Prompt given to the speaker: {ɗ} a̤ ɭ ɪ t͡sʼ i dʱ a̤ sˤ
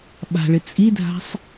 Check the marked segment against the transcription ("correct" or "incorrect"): incorrect